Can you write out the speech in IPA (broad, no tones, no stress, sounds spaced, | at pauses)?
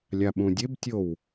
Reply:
lʲ a ɓ ũ dʲ e b tʲ o w